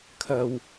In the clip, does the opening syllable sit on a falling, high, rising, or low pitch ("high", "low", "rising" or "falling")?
low